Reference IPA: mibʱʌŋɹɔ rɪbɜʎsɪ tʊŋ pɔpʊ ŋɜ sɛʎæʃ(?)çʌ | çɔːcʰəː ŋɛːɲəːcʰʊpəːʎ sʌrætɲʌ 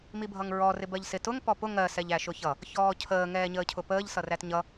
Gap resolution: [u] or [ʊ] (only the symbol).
ʊ